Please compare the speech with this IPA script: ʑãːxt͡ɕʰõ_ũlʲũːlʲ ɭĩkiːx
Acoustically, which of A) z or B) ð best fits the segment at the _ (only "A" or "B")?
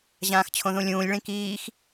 B